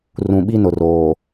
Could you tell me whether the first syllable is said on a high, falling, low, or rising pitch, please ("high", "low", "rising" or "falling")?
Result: low